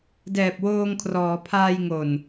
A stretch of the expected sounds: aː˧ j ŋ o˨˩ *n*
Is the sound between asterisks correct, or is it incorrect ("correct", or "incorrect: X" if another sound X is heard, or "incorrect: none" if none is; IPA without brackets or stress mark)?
correct